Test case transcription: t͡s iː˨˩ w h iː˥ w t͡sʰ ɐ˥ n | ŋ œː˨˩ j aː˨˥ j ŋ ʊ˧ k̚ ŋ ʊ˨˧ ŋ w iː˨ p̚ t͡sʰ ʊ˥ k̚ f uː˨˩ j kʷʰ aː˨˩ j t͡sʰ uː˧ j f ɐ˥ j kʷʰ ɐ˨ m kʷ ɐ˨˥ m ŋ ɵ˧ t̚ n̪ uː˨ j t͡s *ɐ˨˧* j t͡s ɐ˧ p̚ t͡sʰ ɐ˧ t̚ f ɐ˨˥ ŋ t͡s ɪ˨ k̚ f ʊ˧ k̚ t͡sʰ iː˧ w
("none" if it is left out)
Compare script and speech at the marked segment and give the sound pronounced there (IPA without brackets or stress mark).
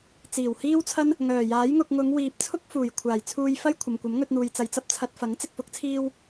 ɐ˨˧